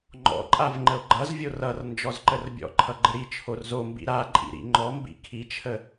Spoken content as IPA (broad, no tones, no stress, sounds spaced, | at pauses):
ŋ͡ǃ ɔ̰ ǃʼ a v ŋ͡ǃ ə o̯ ɡ͡ǃ ʌ z vʲ o r ʌ r n d͡ʒ ɔ z ǃ ə r bʲ ɔ̰ ǃʰ ʌ ɡ͡ǃ ə ɾ i t͡ʃʰ o r z o m b ḭ ɾ a ǃʼ ḭ ɾ ḭ ŋ͡ǃ ɔ m b ḭ kʰ i t͡ʃʰ ə